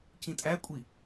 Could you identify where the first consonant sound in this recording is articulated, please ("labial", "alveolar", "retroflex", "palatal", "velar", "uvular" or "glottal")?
palatal